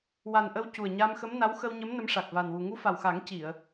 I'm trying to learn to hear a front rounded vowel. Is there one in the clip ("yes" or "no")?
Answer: no